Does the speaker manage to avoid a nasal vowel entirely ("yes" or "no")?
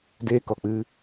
yes